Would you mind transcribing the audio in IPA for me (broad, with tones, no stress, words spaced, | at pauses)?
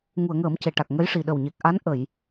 ŋu˨˩˨ə̯ŋəː˨˩˦m ce˨˩ʈa˨˩k̚ ŋə˧˥jʂi˨˩ ɗə˨˩wɲe˨˩k̚ ʔa˧˥nʔə˨˩˨j